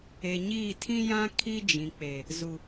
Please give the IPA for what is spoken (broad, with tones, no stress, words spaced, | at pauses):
e˨ɲiː˦˨ tʰĩ˦jã˦ kʰi˦d͡ʒĩ˨k͡pe˨ | zu˨